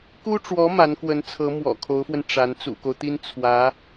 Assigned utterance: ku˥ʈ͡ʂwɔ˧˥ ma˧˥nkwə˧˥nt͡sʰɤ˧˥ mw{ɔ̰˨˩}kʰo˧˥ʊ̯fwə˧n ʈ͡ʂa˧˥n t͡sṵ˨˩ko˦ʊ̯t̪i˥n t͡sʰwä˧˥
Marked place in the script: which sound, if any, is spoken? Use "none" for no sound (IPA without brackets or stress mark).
ɔ̰˨˩